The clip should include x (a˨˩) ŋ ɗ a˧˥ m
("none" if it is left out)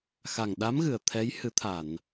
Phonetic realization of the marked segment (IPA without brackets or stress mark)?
a˨˩